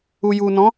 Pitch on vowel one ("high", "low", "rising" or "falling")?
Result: low